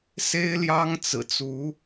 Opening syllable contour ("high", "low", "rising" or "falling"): high